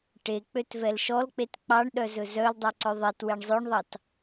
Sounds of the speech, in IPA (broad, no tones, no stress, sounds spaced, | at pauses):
ʈ e k͡p ø t v ɛ l ʃ ɔ l k͡p e t k͡p ɑ ɳ ɗ œ z ɵ z œ l dˤ e ǀ œ ðˤ e t w e ɳ zˤ ɵ ɳ ðˤ ɑ t